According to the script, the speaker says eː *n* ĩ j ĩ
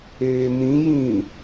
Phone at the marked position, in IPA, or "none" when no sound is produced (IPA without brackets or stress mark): n